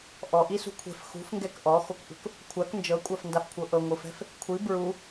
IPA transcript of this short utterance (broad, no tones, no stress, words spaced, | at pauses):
ʔɔʔisṳ kʷʰɛ̤f xṳfŋɡɛk ʔɔxokʔṳk | kʷʰak nd͡ʒɤkʷʼafndafkʷʰɤ ʔɤŋʷɯfɛ̤f | kʷʰi bɹu